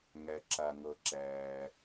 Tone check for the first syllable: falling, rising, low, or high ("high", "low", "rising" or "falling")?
low